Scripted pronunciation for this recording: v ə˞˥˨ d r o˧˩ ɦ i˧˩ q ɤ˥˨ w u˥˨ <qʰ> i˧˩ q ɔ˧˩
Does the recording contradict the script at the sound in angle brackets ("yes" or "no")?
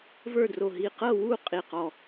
yes